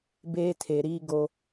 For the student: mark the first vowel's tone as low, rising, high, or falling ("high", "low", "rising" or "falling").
high